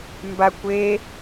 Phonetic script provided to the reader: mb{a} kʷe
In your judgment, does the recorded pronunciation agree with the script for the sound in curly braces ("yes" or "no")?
yes